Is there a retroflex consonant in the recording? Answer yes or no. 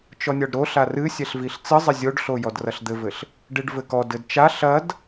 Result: yes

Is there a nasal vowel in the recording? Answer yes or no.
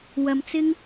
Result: no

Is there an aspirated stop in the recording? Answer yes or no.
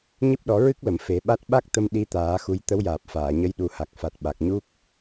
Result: no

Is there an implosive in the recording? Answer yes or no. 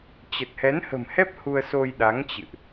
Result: yes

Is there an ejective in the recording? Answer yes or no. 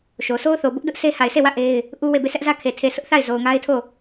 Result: no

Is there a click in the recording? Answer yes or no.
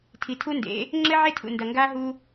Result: yes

